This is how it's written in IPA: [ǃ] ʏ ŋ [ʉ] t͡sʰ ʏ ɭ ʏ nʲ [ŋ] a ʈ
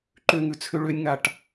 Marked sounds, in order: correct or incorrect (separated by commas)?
correct, correct, correct